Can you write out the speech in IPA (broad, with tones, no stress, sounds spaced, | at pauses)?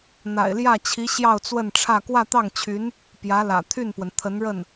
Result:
n̪ a̰˨˩ ɪ̯ l j ä˥˩ t͡ɕʰ i˧˥ ɕ j ɑ˥˧ ʊ̯ t͡s w ə˥˧ n ʈ͡ʂʰ ä˥˧ k w ä˥˧ t̪ ɑ˥˩ ŋ t͡ɕʰ y˧˥ n | p j ä˧˥ l ä̰˨˩ t̪ʰ y˥˩ n p w ə˩ n t̪ʰ ə˧˥ n ɻ ə˥˩ n